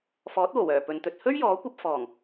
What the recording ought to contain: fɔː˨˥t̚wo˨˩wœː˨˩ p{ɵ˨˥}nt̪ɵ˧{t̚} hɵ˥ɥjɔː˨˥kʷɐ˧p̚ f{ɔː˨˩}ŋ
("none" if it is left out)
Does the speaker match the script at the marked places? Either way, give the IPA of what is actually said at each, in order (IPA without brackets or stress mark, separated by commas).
ɵ˨˧, t̚, ɔː˨˩